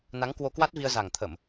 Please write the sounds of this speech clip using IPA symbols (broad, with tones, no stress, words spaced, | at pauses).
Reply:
na˨˦ŋkwo˧ kwa˦˥t̚ vi˧ə̯za˨˩ŋt̪ʰə˧˩˨m